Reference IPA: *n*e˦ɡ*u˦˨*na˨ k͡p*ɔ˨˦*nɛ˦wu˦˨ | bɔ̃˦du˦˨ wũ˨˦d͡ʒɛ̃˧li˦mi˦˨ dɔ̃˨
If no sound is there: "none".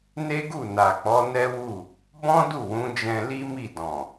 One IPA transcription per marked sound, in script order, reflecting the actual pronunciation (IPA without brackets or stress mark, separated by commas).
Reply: n, u˦˨, ɔ˨˦